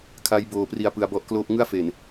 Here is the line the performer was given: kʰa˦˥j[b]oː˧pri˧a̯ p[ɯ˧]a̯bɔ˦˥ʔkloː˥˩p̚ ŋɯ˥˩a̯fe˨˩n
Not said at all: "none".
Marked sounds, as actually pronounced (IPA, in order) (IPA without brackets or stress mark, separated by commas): b, ɯ˧